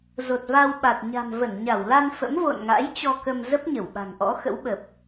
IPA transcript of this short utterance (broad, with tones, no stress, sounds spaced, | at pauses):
z o˨˩ t̚ v a˧ w ɓ a˨˩ t̚ ɲ a̤˨˩ m v ə˧˩ n ɲ a˧˩ w l a˧ n f ə̰˧˥ m v o̰˧˨ n ŋ a̰˧˥ j t͡ɕ ɔ˧ k ə˧ m z ə˦˥ p̚ ɲ ə˧˩ w ɓ a̤˨˩ ŋ ʔ ɔ̰˧˥ x ə̰˧˥ w ɓ ə˨˩ p̚